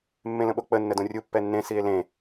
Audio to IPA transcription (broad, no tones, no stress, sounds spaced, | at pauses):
mː ẽ l ə̃ ɓ o k͡p ə nː ə d õ rʲ u pː ɛ nː ẽ s i e̯ l ẽ